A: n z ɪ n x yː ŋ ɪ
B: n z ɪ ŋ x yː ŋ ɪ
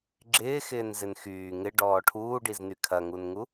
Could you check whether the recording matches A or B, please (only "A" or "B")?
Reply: A